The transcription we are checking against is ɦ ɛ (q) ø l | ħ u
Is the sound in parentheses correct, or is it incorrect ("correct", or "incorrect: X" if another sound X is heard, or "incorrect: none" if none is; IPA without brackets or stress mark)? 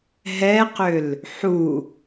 correct